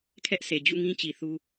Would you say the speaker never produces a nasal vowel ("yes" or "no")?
no